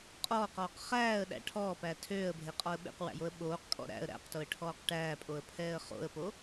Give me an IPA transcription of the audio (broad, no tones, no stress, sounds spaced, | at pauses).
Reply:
qʼ ɔː q ɔː q χ æː ə̯ ɗ æ̰ ʈʰ ɔː p æ tʰ øː ə̯ bʱ e qʼ ɔ ə̯ ɓ ḛ q w æ̰ j o ə̯ ɓ oː q kʼ ɔ̰ ɾ æ̰ ə̯ ɾ æ̰ q t o ə̯ ʈʰ ɔː q ʈ æː pʼ o ə̯ pʰ ɛː ə̯ χ o̰ ə̯ p o